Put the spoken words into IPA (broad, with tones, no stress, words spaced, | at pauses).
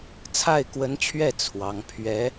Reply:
t͡sʰa˥˩ɪ̯kwə˧˥nt͡ɕʰɥɛ˥˩ t͡sʰwɑ˧˥ŋ pʰɥɛ˧˥